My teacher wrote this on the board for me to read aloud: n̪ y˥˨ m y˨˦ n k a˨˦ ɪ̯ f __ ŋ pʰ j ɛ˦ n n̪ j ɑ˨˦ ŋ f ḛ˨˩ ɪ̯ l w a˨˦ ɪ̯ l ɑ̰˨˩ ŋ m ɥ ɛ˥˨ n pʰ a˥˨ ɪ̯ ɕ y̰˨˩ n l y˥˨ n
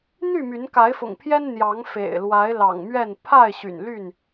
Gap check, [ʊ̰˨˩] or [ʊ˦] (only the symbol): ʊ̰˨˩